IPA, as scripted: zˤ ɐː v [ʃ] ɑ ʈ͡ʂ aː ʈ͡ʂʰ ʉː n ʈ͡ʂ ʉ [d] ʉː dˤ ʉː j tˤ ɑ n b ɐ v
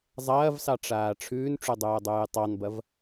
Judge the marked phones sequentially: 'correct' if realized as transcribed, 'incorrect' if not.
incorrect, incorrect

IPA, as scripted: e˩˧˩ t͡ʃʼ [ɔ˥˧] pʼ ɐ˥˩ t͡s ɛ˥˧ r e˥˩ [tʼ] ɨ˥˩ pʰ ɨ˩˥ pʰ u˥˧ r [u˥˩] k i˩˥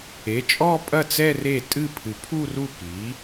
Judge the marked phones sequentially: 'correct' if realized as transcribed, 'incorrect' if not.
correct, correct, correct

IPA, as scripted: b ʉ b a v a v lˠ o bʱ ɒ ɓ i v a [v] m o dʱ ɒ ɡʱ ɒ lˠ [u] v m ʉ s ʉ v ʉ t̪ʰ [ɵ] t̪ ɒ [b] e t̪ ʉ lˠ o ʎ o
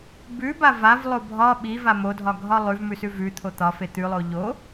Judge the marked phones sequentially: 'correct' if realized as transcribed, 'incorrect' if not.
incorrect, incorrect, incorrect, incorrect

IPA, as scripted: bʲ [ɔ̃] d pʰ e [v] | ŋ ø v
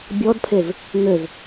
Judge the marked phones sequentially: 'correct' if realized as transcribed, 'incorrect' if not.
incorrect, correct

